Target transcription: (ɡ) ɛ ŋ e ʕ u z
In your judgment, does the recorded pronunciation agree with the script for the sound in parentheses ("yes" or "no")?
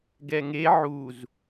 yes